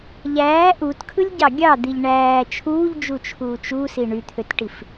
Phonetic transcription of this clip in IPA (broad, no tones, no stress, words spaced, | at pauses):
ʎæː ʔutkʰɯlʲɟɑ ɡʲɑd̪iʎ ɳæː t͡ʃʰuːʎd͡ʒut͡ʃʰuː t͡ʃusi ɳyt̪ʰøtʈif